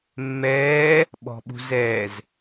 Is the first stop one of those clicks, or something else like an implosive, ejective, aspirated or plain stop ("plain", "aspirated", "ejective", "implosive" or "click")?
implosive